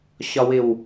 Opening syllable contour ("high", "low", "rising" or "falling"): low